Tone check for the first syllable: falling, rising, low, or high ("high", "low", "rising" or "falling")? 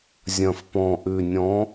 low